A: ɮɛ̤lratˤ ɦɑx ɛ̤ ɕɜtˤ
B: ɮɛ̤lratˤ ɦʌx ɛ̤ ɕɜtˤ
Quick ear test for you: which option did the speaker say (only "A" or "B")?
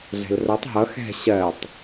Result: B